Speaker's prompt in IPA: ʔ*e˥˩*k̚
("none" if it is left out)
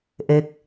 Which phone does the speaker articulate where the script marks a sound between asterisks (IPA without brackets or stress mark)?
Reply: e˦˥